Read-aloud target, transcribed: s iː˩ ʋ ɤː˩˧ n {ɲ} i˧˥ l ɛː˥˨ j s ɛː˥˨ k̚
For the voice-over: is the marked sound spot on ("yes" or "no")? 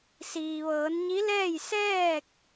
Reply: yes